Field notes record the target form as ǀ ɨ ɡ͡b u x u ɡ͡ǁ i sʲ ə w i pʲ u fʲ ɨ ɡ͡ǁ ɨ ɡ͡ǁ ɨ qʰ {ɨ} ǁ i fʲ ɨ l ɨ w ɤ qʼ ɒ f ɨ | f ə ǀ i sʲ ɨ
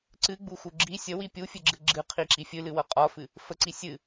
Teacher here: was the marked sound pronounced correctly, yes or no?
no